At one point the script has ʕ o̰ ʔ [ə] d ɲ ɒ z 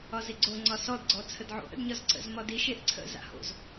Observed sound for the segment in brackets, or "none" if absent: ə̰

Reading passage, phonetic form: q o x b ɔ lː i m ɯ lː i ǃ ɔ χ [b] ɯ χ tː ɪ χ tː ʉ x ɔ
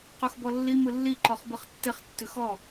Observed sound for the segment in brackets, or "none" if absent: b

